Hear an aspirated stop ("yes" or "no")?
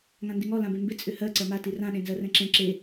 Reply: no